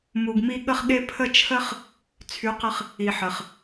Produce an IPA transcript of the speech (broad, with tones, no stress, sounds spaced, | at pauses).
m u˨ ɡ m i˧ ɠ ə˦ χ ɠ e˦ pʰ ə˦˨ t͡ʃʰ ə˦ χ | t͡sʰ y˨˦ q ə˧ χ | i˨ ħ ə˨ χ